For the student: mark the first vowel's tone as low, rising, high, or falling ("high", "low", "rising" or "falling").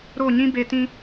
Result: falling